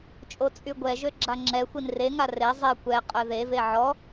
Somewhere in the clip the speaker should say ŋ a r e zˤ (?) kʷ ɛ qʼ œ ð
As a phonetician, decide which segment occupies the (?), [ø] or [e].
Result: e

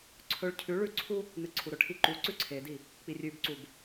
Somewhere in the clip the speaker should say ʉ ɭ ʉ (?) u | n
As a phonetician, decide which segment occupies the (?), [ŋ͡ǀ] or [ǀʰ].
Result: ǀʰ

